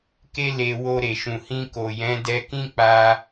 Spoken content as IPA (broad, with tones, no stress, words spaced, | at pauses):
ke˧ le˧ wo˧ɾe˨ʃũ˨ hĩ˧ko˨jɛ̃˨˦ dɛ˧kĩ˦ k͡pa˧